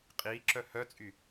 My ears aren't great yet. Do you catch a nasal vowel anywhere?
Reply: no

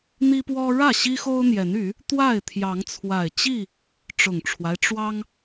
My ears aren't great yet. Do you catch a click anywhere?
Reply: no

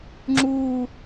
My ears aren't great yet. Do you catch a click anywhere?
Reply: yes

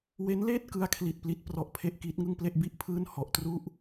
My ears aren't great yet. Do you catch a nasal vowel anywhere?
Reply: no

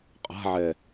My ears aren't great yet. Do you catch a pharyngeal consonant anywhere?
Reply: yes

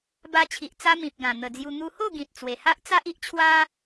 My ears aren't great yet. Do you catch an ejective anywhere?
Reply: no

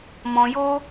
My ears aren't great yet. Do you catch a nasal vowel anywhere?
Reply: yes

